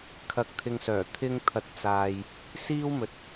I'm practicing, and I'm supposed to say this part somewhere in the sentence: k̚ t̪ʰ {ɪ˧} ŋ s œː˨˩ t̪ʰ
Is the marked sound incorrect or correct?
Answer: correct